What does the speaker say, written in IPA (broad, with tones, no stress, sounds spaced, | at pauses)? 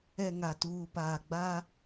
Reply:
ɛ˨ ŋ a˨ t uː˨ p aː˨ ɡ͡b a˦